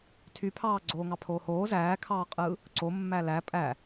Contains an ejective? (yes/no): yes